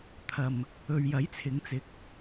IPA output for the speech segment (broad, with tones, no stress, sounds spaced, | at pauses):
t̪ʰ ɐ˨ m | ɵ˨ ɥ j ɐ˨˥ j t͡sʰ ɪ˨˧ ŋ t͡s ɪ˨˥ k̚